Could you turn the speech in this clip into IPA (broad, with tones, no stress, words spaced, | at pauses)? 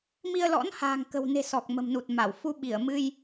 mi˧ə̯lɔ̰˧˥n ha̤ː˨˩ŋkə̤˨˩wne̤˨˩ sɔ˨˩k̚mə̤˨˩mnu˨˩t̚ ma˧˩w fu˧ɓi˧˩ə̯ mɨ˧j